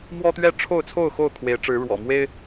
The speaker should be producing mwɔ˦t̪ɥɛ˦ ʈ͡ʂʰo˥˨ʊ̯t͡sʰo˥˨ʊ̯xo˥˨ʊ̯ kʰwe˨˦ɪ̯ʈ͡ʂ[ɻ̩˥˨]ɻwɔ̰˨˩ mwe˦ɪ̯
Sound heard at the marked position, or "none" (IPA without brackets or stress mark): ɻ̩˨˦